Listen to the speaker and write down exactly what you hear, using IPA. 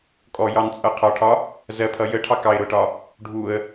kʼ ɔ j ɑ n t͡sʼ ʌ qʰ ɒ ʈʰ ɒ | z ɜ pʰ ʌ j ə ʈʰ ɑ k ɑ ɪ̯ ɾ ʊ ʈ ɒ | ɖʱ u ə̯

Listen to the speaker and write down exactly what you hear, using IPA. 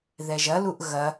ð ɛ ʒ ɐ l u ʔ ɣ ɐ

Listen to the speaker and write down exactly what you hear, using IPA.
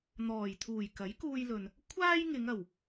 n̪ ɔː˨˩ j t̪ʰ uː˨˩ j k ɐ˨˥ j k uː˧ j l ɵ˨ n | kʷʰ aː˥ j ŋ ɪ˨˧ ŋ ɐ˨˩ w

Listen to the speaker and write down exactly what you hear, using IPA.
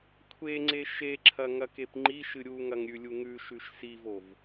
kʷʰ e ŋ͡ǀ e ʃ e ǁʰ ɐ ŋ ɐ k e p ŋ͡ǃ i ʃ ɨ ɾʲ u ŋ ɐ ŋ ɾʲ ʉ lʲ u ŋ ʉ ʃ ʉ ʃ s i v o v

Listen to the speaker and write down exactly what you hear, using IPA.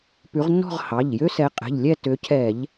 p ʉ˨˦ ʁ nː ɔ̤˥˧ ʁ h ɑ˩˧˩ ʎ j ø˥ s ɛ˨˦ qʼ ɛ̤˩˧˩ ʎ lʲ ɛ˥˧ t ø˨˦ cʰ ɛ˧˩˧ ʎ

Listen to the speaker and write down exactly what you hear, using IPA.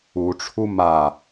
u ʈ͡ʂʰ u m a

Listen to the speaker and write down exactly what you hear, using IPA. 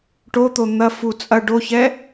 ʈ o t̪ o n̪ ɐ f u t͡sʼ ɐ ɖ o ç ɛ

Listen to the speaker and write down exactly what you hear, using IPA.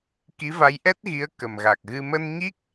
k i˨˦ v a˨˦ j ʔ ɛ˦˥ t̚ ɣ i˨˦ ə̯ k ə˨˩ m ɣ a˨˩ k̚ ɣ ɨ˧ m ə˧ n ɲ i˦˥ k̚

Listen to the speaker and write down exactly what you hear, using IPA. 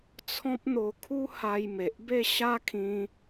t͡sʰ ɔ̃˦ p̚ n̪ o˧ kʰ u˦ h a˧ j m e˨ ʔ b e˥˧ ɕ a˦ kʰ ĩ˧

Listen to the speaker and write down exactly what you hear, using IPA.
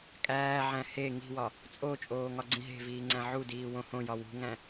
kʼ æː ʕ æ̃ h e ŋ i̤ w ɒ | t͡sʼ o t͡ʃʼ oː ŋ ɒ ɡ͡ǀ ĩ ɦ e̤ v iː ŋ͡ǀ æ̃ ʕ u d iː w õ h õ j ɒ w ṳ ŋ æ̃

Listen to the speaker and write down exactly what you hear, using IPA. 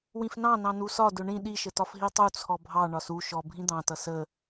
w ĩ f n ɑ̃ n ɑ̃ n u s ɒ d ʊ ɳ ĩ ɗ i ʃ ə t ɒ f ɦ i tˤ u t͡sʰ ɔ bʱ ɑ ɳ ɒ s u ʃ ɔ bʱ ĩ d̪ ɑ̃ t ʌ s ə

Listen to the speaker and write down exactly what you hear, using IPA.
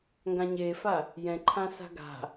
ŋ ɡ ã ɲ e f a | j ɛ̃ ǃʰ ã s a̤ ɡ a̤

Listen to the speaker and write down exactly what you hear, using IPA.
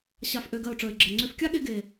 ɕ a˨ f ʔ ø˨ ɡ ɜ˨ ʊ̯ ʈ͡ʂ ə˞˨ ɪ̯ ɡ͡ǁ ɜ˨ ŋ͡ǀ ø˧ f kʲ a˦ ɠ e˧ ɡ e˨

